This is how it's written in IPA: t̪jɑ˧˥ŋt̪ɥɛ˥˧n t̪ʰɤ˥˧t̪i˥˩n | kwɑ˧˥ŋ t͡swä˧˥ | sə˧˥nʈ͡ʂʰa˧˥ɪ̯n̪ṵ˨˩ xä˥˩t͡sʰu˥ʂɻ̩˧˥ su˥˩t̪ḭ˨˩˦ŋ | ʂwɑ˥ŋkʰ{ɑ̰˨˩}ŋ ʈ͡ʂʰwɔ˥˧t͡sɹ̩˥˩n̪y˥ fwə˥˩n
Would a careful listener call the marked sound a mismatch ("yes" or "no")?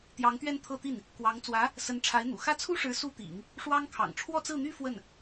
no